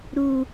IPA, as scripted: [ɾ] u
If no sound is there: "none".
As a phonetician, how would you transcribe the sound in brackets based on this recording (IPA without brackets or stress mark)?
ɾ